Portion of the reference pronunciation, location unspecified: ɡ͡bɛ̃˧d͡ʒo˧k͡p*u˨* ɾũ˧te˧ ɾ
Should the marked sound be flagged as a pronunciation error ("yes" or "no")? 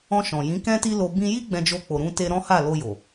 yes